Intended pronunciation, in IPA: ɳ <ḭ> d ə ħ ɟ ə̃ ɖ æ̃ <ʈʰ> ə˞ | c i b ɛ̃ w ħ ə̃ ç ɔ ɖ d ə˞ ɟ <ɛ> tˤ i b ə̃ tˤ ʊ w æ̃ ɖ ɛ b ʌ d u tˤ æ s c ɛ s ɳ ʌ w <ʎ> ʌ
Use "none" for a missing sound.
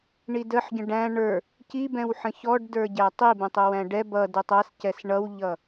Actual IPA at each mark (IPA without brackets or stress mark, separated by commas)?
i, ɳ, æ, ʎ